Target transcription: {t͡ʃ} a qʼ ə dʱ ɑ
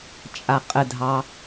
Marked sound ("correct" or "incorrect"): incorrect